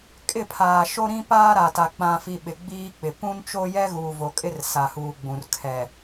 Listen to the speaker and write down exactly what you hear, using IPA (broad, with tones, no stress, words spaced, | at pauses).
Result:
kʼɪ˦˨pʰaː˨ʃo˦ ɾĩ˦paː˦ɾa˨ta˨ k͡pã˨fi˨ ɓɪ˨ɡ͡biː˦k͡pɪ˨ pũ˦nt͡ʃo˦jɛ˦ ɣuː˨vo˨kʼɪ˦r sa˨huː˨ɡ͡bũ˨r kʰɛ˨